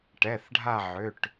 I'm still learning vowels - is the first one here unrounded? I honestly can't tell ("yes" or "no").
yes